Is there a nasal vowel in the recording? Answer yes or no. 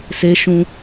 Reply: yes